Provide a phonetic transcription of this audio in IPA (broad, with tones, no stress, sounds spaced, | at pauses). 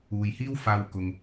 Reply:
uː˨ j h iː˥ w f aː˧ w k ʊ˨ ŋ